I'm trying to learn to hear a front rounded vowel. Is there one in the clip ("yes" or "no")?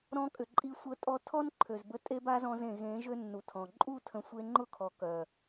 yes